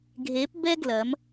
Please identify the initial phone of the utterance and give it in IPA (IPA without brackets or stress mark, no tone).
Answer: ɡʱ